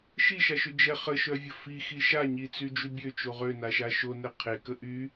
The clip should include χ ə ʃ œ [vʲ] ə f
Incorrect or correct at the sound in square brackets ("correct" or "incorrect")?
correct